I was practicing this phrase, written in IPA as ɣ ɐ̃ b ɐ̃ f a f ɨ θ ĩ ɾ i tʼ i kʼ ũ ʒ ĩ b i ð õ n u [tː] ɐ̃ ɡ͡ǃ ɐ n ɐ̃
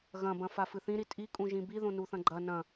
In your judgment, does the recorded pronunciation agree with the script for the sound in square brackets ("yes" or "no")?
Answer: no